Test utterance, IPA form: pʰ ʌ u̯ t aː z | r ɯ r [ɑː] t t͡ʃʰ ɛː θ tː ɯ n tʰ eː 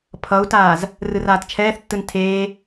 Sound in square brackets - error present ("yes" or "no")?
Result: yes